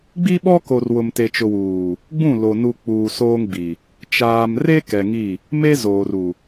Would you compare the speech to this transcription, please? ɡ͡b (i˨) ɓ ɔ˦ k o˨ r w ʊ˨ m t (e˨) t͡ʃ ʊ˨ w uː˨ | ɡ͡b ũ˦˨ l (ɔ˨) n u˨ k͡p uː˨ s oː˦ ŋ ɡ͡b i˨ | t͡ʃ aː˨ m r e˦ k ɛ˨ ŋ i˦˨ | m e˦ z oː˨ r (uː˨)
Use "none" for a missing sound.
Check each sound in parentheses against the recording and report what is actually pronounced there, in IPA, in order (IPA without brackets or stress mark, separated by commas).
i˦, e˨, o˨, u˨